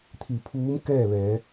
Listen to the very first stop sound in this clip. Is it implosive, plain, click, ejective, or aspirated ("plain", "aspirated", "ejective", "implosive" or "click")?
aspirated